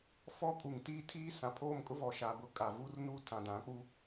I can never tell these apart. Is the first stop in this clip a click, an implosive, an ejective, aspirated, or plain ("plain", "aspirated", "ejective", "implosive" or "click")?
ejective